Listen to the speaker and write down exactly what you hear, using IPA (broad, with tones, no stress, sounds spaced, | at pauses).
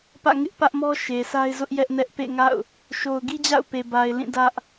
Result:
p ä̰˦˨ ŋ ɪ˦ ʔ p ä˦ ʔ m ɔ˦ ʃ e˨ s a˦ ɪ̯ z ʊ˦ ʔ j ɛ˦ ʔ n ɛ˦ ʔ p ḛ˦˨ ŋ a̰˦˨ ʊ̯ | ʃ o˨ ʊ̯ ɡ i˦ d͡ʑ a̰˦˨ ʊ̯ p e˨ b a˨ ɪ̯ l ĩ˦˨ d ä˦ ʔ